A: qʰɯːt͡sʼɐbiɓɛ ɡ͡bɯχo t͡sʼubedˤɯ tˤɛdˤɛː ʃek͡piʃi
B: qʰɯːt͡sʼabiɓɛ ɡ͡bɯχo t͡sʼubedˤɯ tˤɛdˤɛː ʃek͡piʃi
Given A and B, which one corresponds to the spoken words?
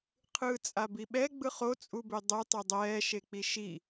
B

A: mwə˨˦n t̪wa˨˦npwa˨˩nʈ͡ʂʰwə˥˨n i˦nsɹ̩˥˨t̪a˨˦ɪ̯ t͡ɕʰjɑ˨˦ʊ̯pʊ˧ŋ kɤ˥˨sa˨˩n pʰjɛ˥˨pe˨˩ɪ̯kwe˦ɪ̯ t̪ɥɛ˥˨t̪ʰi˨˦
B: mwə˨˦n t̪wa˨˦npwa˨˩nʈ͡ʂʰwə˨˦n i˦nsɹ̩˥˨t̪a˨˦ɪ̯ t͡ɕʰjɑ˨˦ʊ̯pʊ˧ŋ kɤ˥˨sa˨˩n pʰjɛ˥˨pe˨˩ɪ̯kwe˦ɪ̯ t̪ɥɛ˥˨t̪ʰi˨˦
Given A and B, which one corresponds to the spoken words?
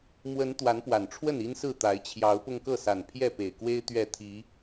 A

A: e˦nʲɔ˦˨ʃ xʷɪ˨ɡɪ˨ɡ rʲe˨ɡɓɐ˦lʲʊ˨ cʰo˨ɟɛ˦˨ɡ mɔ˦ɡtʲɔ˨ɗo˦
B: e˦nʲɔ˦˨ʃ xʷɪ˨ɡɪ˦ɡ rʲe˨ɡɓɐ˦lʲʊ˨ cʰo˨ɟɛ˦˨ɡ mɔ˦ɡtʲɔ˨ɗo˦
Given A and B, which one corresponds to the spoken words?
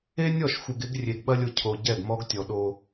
B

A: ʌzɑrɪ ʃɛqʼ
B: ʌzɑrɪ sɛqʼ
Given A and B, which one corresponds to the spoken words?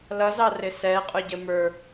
B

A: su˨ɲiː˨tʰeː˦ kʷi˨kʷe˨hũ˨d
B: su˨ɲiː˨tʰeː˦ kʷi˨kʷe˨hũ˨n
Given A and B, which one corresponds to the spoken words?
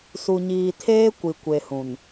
B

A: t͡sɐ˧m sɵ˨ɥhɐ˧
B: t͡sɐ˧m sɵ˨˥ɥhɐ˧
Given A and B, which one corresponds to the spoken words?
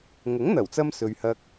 A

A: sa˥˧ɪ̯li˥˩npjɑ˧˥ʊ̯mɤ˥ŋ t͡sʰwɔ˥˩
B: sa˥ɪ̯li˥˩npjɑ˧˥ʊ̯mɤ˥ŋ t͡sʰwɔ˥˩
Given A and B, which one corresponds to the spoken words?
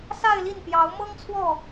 A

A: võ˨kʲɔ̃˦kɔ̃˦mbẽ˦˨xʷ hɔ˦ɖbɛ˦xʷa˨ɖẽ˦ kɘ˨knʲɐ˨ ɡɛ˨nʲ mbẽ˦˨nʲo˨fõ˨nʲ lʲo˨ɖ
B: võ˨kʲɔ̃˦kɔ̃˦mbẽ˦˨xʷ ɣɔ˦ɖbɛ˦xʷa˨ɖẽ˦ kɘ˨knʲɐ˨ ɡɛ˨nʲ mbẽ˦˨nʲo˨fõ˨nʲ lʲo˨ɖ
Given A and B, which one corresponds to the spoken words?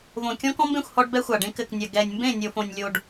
A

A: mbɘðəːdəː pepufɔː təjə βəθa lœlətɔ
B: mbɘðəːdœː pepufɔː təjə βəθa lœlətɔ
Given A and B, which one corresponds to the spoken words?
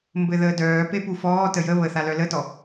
B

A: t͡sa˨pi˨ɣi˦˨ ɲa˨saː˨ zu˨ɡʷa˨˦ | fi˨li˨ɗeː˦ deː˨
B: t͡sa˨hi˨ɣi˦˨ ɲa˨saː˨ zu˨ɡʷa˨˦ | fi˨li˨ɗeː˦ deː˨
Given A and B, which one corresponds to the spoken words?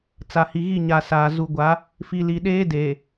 B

